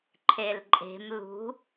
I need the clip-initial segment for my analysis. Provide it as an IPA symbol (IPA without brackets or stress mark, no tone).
ǃʰ